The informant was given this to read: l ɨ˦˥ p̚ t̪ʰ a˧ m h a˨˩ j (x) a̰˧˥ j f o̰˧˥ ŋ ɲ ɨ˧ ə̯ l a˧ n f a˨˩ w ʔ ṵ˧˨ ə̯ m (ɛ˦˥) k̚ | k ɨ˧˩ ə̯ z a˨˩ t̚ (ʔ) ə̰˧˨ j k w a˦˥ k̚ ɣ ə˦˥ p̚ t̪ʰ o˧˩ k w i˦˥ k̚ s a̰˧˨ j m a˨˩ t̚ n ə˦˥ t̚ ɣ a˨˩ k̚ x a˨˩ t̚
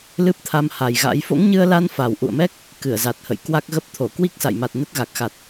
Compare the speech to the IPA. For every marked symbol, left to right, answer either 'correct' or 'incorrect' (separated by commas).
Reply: incorrect, correct, incorrect